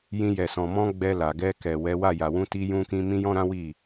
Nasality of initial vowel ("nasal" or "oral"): nasal